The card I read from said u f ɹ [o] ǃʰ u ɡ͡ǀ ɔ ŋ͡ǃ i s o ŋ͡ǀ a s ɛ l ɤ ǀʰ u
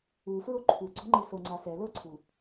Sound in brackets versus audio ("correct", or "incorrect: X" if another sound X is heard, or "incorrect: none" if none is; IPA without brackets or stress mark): correct